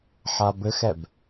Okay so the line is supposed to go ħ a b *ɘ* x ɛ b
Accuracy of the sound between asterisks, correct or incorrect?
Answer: correct